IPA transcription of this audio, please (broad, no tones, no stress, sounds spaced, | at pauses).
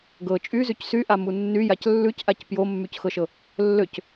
ɡ ɤ t͡ʃʼ y z y c s y ʔ a m u nː y j a c lː ʉ c ʔ a c p j o mː y c x ɤ ʃ ɤ | lː ø c